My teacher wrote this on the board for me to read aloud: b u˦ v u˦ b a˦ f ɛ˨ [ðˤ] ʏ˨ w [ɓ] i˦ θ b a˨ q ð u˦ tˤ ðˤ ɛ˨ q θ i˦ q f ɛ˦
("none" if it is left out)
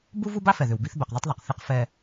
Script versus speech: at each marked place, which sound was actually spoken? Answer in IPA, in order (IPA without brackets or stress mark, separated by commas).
ð, b